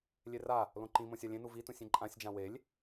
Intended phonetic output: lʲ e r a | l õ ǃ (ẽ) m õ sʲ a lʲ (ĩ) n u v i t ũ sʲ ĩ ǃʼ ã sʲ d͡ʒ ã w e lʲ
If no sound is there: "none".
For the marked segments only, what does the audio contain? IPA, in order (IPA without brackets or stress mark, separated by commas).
ĩ, ẽ